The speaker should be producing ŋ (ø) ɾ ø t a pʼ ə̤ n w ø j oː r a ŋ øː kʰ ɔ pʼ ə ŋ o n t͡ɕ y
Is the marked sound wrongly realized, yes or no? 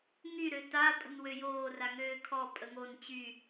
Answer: yes